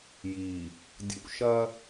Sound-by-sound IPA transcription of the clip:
j i˨ | dʲ ṵ˨ ʃ ɐ˦

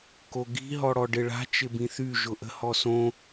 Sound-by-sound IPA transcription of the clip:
k o ɡ i̤ ɦ ɔ ɽ ɔ ɖ ɪ ɭ a̤ t͡ʃ ɪ b ĩ θ y ʒ ʊ ʔ ə̤ h ɔ s õ

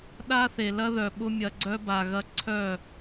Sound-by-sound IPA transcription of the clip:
ɗ a˦ θ e˨ l ɐ˦ ð œ˨ ɓ ʊ˦ mʲ ɐ˧ ɡ͡ǀ œ˦ b a˧ ɣ ɐ˦ ǀʰ œ˦˨

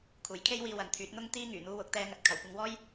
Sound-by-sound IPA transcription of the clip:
kʰ uː˨˩ j kʰ e˥ j w iː˧ w ɐ˨ n t̪ʰ yː˨˥ t̚ n̪ ʊ˥ ŋ t̪ iː˥ ŋ yː˨˩ n̪ uː˧ w ʊ˨˥ k̚ t̪ ɛː˧ ŋ ɐ˨˥ t̚ kʰ ɐ˨˩ w kʷ ɐ˧ ŋ w ɔː˥ j

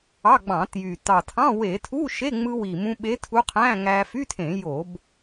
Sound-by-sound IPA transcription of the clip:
ɑ˧˥˧ ɡ͡b ɑ̃˧˩˧ t j y˨˩ t ɑ˨˩ tʰ ɑ̃˧˥˧ w e˧˩˧ tʰ u˧˥˧ ʃ e˧˥˧ ŋ͡m ɯ˧ w i˨˩ m ũ˧ ɓ e˧˥ tʰ u˧˥ qʰ æ̃˧˥˧ ŋ æ˧ f y˧˥˧ tʰ ẽ˧˩˧ j o˧˩˧ b

